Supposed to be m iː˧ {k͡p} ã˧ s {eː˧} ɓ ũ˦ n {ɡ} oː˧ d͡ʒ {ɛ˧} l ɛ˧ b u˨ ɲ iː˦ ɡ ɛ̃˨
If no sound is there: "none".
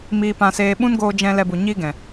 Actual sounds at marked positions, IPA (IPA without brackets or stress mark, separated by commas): p, eː˧, ɡ, ɛ̃˧